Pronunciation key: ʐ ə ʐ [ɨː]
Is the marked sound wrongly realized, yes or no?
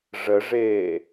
yes